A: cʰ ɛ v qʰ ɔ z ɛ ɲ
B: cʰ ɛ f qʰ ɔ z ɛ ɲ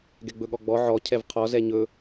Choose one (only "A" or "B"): A